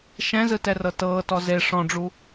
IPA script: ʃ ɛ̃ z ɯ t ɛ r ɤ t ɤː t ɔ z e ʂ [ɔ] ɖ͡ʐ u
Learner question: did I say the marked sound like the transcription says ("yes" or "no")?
no